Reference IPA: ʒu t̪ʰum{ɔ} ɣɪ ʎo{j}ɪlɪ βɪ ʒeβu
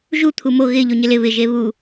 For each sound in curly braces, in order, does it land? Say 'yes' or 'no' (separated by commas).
no, no